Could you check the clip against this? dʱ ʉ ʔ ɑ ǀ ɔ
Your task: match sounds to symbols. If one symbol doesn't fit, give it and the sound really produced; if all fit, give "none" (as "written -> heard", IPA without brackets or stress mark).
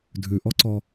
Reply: ɑ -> ɔ